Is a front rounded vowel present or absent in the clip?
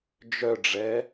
present